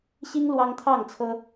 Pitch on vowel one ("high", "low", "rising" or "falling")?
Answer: high